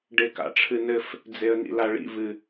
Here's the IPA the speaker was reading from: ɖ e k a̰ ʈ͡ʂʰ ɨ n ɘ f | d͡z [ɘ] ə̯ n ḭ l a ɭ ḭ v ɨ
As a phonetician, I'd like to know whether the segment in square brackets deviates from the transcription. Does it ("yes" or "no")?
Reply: yes